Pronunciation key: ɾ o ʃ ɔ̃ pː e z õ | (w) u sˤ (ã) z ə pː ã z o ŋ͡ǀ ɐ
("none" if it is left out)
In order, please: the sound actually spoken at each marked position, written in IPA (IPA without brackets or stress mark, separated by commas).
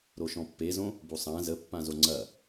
b, æ̃